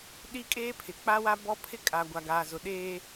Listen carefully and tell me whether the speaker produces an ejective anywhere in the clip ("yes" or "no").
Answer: yes